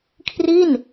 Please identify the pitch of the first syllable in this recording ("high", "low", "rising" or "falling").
falling